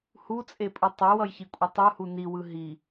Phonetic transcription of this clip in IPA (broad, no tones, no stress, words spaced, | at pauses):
hut͡sʼepʼɯ tˤewʌjçikʷʼʌ tˤuhu niwɯ ɦi